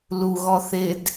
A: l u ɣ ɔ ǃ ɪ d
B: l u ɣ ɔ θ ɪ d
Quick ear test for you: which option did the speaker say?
B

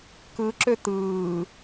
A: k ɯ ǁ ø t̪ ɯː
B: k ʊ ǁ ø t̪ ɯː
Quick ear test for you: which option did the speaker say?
A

